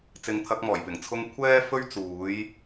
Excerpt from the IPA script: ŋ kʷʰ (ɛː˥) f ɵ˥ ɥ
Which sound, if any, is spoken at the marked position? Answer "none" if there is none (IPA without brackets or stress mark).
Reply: ɛː˥